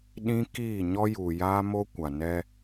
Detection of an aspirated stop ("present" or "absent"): absent